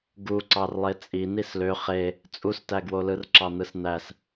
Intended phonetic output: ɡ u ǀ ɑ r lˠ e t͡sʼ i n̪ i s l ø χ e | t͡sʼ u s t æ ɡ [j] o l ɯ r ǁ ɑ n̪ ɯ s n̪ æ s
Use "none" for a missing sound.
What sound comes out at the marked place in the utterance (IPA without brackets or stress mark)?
w